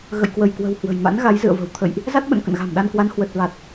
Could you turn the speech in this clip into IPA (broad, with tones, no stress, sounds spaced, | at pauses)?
ɣ ə̰˧˨ j k w ə˧˩ j k w ə̤˨˩ w h w ə̤˨˩ j m a̰˧˥ n ɣ a˨˦ j z ɨ̰˧˨ ə̯ v ə̤˨˩ w t̪ʰ ə̰˧˨ j ʔ | z a˦˥ t̚ ɓ ə̰˧˨ n k ə̰˧˨ n ɣ a̤˨˩ m ɗ a˧ n k w a˨˦ n h w ə˨˩ t̚ v a˨˩ t̚